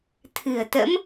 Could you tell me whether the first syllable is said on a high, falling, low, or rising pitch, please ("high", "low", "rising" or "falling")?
low